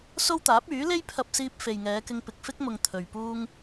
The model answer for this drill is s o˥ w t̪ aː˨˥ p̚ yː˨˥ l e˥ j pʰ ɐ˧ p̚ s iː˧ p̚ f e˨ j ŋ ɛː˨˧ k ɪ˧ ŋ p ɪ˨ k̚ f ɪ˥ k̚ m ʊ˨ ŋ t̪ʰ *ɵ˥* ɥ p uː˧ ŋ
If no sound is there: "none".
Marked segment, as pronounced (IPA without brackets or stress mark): ɵ˨